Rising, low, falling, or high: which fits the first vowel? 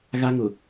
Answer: high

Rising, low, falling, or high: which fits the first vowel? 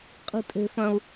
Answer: high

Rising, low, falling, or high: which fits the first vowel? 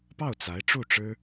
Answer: falling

